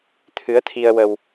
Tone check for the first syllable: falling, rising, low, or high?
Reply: rising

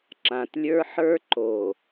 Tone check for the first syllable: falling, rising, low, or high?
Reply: low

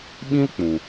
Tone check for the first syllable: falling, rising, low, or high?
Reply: high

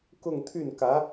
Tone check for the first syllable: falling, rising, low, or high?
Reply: falling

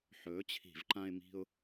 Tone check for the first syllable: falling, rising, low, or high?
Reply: rising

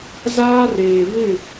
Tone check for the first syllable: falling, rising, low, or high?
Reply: high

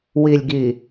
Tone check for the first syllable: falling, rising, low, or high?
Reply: low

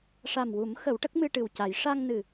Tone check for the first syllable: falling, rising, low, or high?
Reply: low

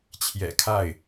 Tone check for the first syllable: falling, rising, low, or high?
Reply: low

